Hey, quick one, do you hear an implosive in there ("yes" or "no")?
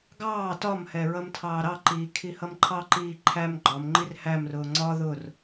no